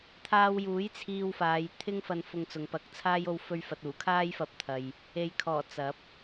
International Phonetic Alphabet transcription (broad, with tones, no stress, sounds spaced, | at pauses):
t̪ʰ aː˧ w j uː˨˥ j t͡sʰ iː˧ w f aː˨˧ j t̪ʰ ɪ˥ ŋ f ɐ˧ n f ʊ˧ ŋ t͡s ʊ˨ ŋ p ɐ˧ k̚ t͡sʰ aː˥ j o˥ w f ɵ˥ ɥ f ɐ˧ t̚ uː˨˩ kʰ aː˥ j f ɐ˧ p̚ t̪ʰ ɐ˨ j | e˨ j kʰ ɔː˨˩ t͡s ɐ˨˥ p̚